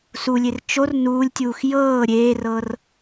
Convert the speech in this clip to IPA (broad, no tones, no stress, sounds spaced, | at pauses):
s u lʲ e r t͡ʃ o r n uː lʲ tʲ uː x j ɤː ɾʲ eː r ɤ r